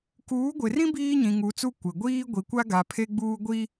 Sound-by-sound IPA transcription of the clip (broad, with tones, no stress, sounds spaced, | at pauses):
k uː˨˦ ɡʷ ɪ˨ r ĩ˦ b iː˦ ɲ ĩ˨ ŋ u˨˦ t͡s u˦ kʷ ɪ˨ ɡʷ iː˦ ɡʷ i˨ kʷ a˦ ɡ a˨ pʰ e˦ ɡ͡b uː˦ ɡʷ i˦